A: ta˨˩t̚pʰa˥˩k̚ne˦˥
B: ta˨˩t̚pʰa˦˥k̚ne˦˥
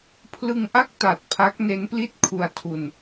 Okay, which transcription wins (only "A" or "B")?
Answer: B